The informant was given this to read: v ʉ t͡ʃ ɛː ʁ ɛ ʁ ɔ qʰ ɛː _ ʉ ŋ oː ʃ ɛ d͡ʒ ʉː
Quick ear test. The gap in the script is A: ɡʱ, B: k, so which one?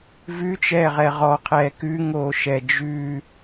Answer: B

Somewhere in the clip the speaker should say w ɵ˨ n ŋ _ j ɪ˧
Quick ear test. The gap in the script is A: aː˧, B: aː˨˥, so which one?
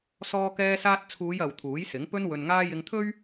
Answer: A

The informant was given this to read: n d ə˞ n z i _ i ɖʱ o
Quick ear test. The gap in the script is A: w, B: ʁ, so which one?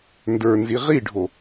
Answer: B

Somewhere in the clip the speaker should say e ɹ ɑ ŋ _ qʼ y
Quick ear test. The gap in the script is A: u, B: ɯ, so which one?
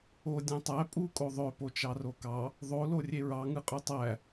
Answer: B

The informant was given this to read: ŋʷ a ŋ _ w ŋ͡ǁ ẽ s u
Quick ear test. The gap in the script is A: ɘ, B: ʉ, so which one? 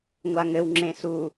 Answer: A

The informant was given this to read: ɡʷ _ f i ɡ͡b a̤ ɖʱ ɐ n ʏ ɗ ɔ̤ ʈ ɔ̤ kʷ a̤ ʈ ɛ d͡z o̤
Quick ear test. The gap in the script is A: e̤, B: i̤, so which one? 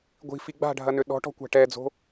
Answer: B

